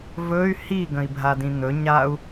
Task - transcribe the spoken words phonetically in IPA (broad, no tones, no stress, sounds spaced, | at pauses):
v ɵ y̯ h i ɡ ə̃ i̯ bʱ a d ĩ n̪ ɵ ɲ a u̯